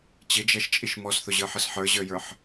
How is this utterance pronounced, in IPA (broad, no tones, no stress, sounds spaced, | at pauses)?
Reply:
t͡ɕ ɪ d͡ʒ ɛ ʃ t͡ʃʼ i ʃ m ɔ s θ ʊ ʑ ə˞ ħ ə s ħ ə˞ ʑ ə˞ j ə˞ ħ